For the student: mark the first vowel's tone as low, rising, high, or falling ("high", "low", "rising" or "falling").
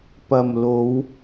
low